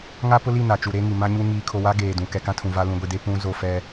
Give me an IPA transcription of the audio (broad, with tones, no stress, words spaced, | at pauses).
ŋa˦pʊ˦li˦˨ na˨t͡ʃu˨ɾe˦ŋi˨ mã˦ɲu˦ ŋiː˨kʰo˨wa˦ ɡeː˨dũ˨ kɛ˨kã˦tʰũ˨ va˦ lũ˨ɡʷi˨de˦ pũ˦ zo˦˨fɛ˦